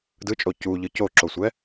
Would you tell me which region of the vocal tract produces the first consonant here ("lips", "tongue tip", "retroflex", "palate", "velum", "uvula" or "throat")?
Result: tongue tip